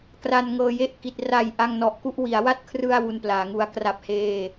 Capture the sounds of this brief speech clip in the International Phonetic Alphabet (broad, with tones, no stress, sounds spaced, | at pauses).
k r a˧ n ŋ ɤː˧ j e˥˩ ʔ k i˨˩ t̚ r a˨˩ j ʔ a˧ ŋ n ɔ˨˩ ʔ k u˥˩ ʔ w i˩˦ a̯ w a˥˩ t̚ kʰ r ɯ˧ a̯ w u˧ n p l aː˩˦ ŋ u˧ a̯ k r a˥˩ p̚ h eː˥˩